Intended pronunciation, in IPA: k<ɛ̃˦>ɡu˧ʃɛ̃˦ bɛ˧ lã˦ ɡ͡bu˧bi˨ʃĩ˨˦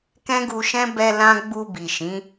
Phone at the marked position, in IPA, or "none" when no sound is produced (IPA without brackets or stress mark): ɛ̃˦